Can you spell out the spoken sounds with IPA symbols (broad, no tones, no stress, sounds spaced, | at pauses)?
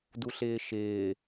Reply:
d u ɬ ɪː ʃ ɪː